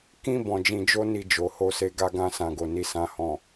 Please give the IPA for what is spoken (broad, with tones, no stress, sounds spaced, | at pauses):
k ĩ˦ b ɔ̃˧ d͡ʒ ĩ˧ d͡ʒ o˦ n i˧ d͡ʒ o˨ h o˧ s e˧ ɡ a˧ ɡ ã˧ s ã˨ ɡ o˨ n i˨ s ã˨ h ɔ̃˨